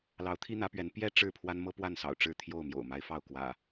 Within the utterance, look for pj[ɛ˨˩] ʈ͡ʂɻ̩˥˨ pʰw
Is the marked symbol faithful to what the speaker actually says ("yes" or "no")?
no